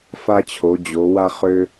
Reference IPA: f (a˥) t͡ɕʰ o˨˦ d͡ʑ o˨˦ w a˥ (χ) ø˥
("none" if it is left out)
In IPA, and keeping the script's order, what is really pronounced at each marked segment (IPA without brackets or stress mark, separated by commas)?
a˥, χ